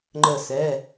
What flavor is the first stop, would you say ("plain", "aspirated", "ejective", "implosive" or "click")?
click